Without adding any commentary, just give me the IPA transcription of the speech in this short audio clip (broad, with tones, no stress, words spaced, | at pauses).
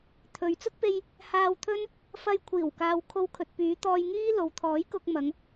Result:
t̪ʰɵ˨˧ɥ t͡sʊ˥k̚pe˧j | haː˧wt̪ʰɵ˥n | fɐ˧jkʷʰiː˨˩w kaː˨wkʰo˧w kʰɵ˨t̚pyː˨˧t̪ɔː˧jŋiː˥ lo˨˧wt̪ʰɔː˨˥jkʊ˧k̚mɐ˨˧ŋ